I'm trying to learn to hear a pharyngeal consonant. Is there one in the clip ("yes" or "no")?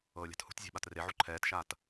yes